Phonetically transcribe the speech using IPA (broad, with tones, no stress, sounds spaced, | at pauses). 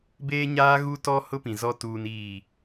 b eː˦ ɲ aː˦ ɣ u˦ t ɔ˦ h ʊ˦ p ĩ˨ z ɔ˦ t uː˦ n iː˦˨